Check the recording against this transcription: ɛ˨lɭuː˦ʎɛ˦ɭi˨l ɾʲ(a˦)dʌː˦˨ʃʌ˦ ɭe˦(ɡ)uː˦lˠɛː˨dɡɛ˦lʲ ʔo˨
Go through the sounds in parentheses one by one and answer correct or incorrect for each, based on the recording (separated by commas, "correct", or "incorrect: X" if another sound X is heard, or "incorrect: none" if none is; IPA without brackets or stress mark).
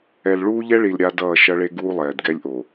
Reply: correct, correct